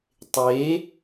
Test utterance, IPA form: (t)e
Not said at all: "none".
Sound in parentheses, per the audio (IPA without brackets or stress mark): tˤ